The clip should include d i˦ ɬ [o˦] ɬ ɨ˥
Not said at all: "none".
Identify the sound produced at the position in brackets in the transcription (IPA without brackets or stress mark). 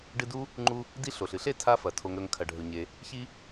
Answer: o˩